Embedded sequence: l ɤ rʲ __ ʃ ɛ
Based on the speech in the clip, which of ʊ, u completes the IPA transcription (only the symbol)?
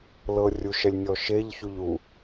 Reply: u